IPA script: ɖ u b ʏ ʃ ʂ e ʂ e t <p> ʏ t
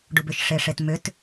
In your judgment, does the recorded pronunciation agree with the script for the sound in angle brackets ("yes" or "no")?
no